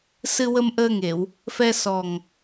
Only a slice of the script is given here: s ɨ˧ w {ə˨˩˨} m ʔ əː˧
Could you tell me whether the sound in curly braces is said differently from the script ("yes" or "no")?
yes